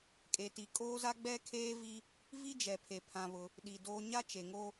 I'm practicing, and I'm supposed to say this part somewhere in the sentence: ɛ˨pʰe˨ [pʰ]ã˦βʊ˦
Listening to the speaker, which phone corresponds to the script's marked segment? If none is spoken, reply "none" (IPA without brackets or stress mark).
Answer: pʰ